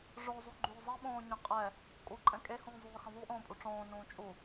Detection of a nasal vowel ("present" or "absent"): present